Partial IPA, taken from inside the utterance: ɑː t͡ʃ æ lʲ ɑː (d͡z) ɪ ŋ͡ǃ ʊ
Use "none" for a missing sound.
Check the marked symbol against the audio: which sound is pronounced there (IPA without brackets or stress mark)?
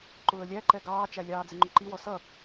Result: d͡z